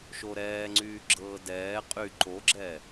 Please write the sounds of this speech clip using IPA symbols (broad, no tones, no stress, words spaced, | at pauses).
ʃoɾɛːŋ͡ǀyː ɡ͡ǁɤːdɛː qʼy ǃoɡ͡ǁɛ